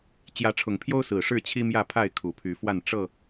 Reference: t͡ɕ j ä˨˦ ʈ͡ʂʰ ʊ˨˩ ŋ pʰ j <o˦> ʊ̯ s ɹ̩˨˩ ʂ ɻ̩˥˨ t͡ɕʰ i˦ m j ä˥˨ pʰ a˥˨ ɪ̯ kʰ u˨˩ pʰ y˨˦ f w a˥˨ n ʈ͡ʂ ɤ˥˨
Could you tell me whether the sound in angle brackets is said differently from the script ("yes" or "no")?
no